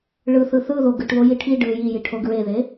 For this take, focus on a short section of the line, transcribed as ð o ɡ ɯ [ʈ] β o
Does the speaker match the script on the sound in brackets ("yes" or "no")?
yes